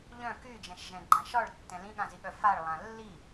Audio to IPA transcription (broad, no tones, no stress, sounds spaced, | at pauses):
ʎ œ̃ k y d͡ʒ ɛ̃ ʃ ʒ ɛ̃ ɡ͡ǃ ã ʃ ɒ ɭ tː ɛ̃ l ĩ ɠ ã z i ɠ œ f a ɭ lˠ ã lː i